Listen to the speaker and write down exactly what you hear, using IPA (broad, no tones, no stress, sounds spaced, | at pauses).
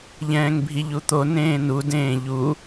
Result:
ʎ ɛ̃ː ŋ bʱ i ʎ u t̪ o n ẽː n u d ẽː ʎ u